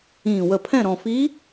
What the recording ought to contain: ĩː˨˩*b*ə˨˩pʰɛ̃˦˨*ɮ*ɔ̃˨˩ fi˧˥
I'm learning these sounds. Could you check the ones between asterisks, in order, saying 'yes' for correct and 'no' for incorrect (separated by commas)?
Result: no, no